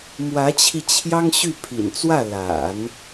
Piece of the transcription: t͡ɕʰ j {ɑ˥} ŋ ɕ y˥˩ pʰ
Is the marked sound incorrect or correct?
correct